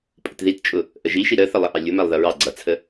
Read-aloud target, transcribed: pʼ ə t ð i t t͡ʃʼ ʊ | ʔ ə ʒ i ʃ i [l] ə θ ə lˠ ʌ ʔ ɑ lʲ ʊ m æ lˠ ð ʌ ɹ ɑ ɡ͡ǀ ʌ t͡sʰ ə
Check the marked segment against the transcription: incorrect: ɾ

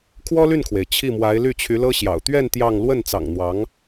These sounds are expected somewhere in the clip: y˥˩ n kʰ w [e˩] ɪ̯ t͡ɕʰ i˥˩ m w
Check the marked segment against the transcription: correct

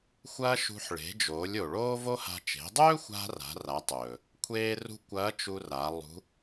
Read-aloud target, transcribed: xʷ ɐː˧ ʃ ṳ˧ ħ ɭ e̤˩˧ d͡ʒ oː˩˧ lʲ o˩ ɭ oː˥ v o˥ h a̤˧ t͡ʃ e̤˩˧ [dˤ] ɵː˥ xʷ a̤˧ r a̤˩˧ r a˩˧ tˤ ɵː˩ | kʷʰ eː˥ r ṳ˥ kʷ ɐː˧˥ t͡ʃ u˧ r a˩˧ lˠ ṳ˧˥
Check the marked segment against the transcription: correct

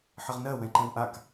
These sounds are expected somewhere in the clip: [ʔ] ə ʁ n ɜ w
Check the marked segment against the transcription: incorrect: ħ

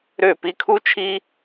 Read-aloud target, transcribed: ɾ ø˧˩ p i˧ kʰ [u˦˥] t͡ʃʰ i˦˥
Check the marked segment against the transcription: correct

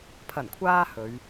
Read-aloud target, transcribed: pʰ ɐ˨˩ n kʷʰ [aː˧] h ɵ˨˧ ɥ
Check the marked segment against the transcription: correct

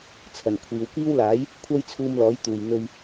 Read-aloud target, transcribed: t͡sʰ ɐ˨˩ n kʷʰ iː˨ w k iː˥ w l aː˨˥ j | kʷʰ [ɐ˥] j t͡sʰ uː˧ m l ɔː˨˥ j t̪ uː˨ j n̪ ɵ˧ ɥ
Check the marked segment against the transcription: correct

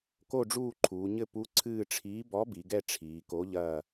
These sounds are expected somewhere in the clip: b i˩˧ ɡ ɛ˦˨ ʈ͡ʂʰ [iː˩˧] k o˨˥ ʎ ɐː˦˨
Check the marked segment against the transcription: correct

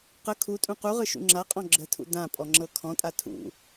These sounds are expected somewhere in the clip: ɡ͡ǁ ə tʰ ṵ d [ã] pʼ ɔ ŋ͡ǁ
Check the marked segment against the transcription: correct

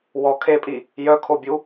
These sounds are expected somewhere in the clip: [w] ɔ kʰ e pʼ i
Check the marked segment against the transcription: correct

